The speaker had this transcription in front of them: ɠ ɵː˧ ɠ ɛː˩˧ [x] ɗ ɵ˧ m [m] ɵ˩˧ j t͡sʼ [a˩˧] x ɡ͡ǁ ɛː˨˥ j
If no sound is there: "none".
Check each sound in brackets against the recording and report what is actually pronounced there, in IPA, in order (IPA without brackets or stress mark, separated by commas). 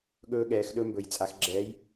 x, b, a˩˧